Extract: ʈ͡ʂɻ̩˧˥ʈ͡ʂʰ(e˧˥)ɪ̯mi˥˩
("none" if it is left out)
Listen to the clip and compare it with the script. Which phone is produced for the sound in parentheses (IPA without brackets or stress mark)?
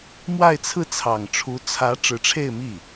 e˥˧